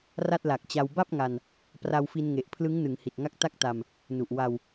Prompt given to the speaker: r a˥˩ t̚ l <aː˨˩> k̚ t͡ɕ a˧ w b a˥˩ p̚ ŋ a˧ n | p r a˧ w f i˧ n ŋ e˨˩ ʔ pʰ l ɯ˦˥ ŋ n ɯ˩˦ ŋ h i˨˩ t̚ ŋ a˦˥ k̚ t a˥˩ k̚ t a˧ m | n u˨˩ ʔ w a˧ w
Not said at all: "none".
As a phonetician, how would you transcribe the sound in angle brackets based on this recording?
a˨˩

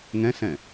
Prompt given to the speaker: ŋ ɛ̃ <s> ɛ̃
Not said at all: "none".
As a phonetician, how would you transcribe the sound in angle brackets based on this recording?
s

